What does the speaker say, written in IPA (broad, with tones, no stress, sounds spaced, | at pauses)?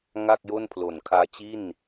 ŋ a˥˩ k̚ j o˥˩ n pʰ l o˨˩ n kʰ aː˦˥ t͡ɕ i˥˩ n